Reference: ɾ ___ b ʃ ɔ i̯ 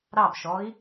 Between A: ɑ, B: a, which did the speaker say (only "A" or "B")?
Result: A